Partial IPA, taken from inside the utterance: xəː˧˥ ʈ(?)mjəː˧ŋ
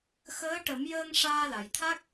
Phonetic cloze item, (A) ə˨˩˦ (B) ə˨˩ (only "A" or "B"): A